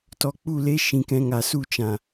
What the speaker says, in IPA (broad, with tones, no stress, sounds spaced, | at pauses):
t ɔ˧ k͡p u˦˨ l e˦ ʃ ĩ˧ k ɛ̃˧ ŋ a˨ s u˦˨ t͡ʃ ã˨